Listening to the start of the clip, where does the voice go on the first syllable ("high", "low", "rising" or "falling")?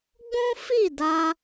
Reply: high